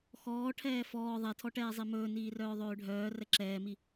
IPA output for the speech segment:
xɔː ʈʰɛːfɔː ðˤɛtʰɔʈɛːzˤi mɵːniːrœː ðˤøːɖʱœː rɛǁɛːmi

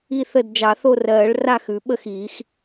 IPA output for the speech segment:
i˥˨θə˥˨d d͡ʒɑ˨˩˦θo˥˨rɜː˨˩˦ɭ ra˥˨x ʉ˨˩˦ɓə˥˨xiː˨˩˦x

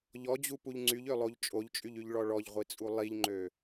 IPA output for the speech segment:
ʎɔd͡ʑupuʎ ŋ͡ǀyʎølˠoʎ t͡ʃʼoʎt͡ʃʼyʎyʎɭɔ ɭɔʎʁʷit͡sʼu lˠiʎŋ͡ǃø

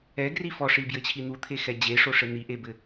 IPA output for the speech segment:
ɛɡri fɔʂibjɘt͡ɕʰi n̪ut̪ʰexɛ d͡ʑeʂoʂɘ n̪iʔebɘ

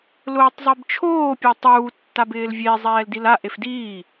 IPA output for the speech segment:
lʊːtˤzˤibt͡ʃʰoː pʲetˤuː tːabɪːlvʲe zˤɛːldila ʔefdiː

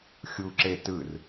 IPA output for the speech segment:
xʲuǁe tɯr

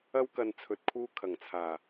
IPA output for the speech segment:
ɐ˥wkɐ˧n t͡sʰɵ˧t̚kʰuː˥ kʰɐ˨˩ŋt͡sʰaː˨˩

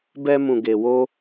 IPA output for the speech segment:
bɛ˦mũ˧ɡe˧ wo˦

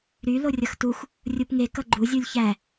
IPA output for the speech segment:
ɾy lorʲʌxtux | rʲupŋe kʌɡ͡ǃu zʲulʲçæ

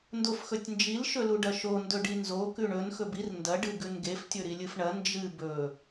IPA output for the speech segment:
ndofxɵtʲnd͡ʒil ʃɵluɖɐʃo ndɵɖinzo kʉɳɵn xɵbir ndɐ ɖɨɡʉnɡef tʲɵɾilʲɨfɳɐ nd͡ʒɨ bɵ

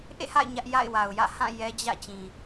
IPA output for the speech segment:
ʔḛ˦˨ha̰˦˨ɪ̯ ɲä˦ʔja̰˦˨ɪ̯wa˨ʊ̯ jä̰˦˨hã˦˨ jɛ˦d͡ʑä̰˦˨ t͡ɕĩ˨

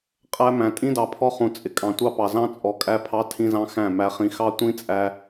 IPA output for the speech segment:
qʼæ˦mæ̃˨ tʼĩ˦dɑ˨pʰɔ˦ χũ˨t͡sʼɪ˨ kʼɑ̃˨tʷɑ˦pɑ˨ zɑ̃˦ t͡sʼɔ˨ kʼæ˦pʰɑ˦ tʰĩ˦zɑ̃˦xæ̃˦˨ mæ˨χĩ˨xɑ˦ tʷĩ˦ t͡sʼæ˦

